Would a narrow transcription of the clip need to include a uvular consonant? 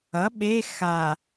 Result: no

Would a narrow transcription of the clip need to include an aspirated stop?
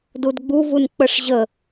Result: no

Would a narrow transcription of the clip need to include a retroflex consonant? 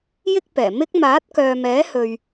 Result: no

